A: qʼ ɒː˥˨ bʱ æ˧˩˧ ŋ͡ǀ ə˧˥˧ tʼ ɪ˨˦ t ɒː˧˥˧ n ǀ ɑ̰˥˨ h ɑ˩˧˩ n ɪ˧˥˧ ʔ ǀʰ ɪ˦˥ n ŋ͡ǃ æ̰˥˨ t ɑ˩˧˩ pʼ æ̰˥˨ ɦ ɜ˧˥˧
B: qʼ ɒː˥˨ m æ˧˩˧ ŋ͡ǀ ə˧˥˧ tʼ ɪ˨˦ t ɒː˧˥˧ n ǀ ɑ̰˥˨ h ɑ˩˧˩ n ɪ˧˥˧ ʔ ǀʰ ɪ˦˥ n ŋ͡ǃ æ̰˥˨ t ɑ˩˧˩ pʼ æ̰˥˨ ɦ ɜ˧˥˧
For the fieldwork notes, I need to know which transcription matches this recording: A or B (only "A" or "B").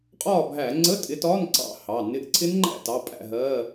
A